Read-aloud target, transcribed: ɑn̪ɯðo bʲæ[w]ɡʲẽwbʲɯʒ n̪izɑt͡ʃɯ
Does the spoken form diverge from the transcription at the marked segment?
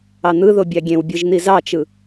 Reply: yes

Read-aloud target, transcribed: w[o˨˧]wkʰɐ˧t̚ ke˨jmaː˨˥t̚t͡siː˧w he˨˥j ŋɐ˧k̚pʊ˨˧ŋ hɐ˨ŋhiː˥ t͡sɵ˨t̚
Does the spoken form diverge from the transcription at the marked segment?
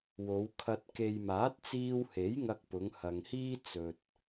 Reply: no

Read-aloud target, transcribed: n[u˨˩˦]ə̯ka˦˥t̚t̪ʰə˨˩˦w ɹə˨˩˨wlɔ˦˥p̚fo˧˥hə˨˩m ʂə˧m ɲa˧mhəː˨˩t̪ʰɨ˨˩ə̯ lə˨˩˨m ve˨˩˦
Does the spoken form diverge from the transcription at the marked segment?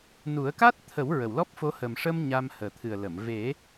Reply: no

